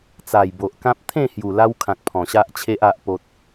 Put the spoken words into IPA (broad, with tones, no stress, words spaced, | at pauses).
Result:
t͡sa˨˩jbo˨ʔkã˦p̚ t̪ʰẽ˥˧ hju˨˩la˦wkʰã˨k̚ pʰɔ̃˨˩ɕa˦ʔt͡ɕʰe˦ʔ a˦ʔpo˦t̚